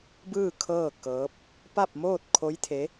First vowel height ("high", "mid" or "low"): high